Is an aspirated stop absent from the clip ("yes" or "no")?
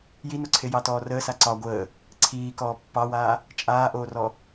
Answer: no